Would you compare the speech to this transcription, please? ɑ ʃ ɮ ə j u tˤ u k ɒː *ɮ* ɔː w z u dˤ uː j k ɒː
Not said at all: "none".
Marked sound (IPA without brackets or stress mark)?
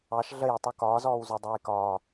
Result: z